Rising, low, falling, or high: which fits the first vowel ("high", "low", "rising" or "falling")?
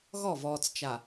falling